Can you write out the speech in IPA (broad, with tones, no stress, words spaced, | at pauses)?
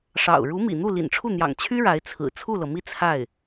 ʂɑ̰˨˩ʊ̯ ɻu˧˥mḭ˨˩n̪u˥˩ lḭ˨˩nʈ͡ʂʰu˥˩n̪jɑ̰˨˩ŋt͡ɕʰy˥ ɻa˧˥ɪ̯t͡sʰɹ̩˨˩ t͡sʰu˥˩lɤ˩mi˥˧ t͡sʰa˥˩ɪ̯